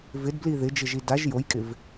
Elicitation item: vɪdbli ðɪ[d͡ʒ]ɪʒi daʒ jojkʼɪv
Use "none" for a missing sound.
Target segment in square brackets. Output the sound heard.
d͡ʒ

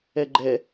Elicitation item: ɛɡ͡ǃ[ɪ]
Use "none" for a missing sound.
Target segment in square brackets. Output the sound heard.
ɛ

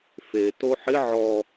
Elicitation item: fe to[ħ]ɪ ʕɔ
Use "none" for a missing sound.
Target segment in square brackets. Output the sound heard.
ħ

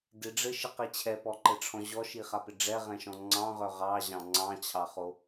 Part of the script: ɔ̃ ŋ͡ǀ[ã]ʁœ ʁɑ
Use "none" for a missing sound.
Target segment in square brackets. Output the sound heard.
ɑ̃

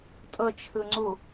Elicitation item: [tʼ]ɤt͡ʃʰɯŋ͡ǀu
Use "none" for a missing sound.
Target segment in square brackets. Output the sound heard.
tʼ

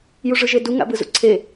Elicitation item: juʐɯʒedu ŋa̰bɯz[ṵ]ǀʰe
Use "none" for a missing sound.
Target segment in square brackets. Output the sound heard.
ṵ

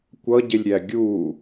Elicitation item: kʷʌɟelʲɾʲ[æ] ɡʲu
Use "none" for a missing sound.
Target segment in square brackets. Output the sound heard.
æ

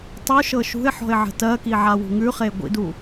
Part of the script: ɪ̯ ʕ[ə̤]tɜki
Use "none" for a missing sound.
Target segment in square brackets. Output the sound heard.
ə̤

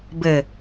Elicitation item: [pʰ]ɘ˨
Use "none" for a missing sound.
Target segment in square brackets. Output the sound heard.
b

